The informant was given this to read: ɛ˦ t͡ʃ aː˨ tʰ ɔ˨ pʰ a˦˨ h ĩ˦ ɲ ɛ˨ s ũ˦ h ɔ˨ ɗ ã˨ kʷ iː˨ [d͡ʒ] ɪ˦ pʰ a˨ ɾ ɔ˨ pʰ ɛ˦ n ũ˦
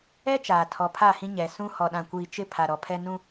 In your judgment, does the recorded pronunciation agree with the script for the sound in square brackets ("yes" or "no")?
no